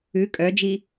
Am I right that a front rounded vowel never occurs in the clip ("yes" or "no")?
no